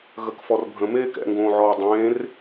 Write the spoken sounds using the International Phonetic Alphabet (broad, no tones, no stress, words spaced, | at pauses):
ɣəkfɔrbʱə̃ meːkɛ̰ŋɡõːʕɔː dˤẽːr